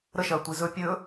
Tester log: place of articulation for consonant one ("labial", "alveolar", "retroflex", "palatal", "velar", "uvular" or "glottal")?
alveolar